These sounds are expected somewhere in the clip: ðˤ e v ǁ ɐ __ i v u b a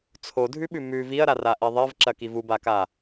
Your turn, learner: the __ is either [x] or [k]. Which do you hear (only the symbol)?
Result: k